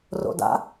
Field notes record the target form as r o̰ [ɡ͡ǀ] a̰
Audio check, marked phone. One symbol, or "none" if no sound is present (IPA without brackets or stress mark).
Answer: d